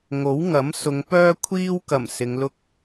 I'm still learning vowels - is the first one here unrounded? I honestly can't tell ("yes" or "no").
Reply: no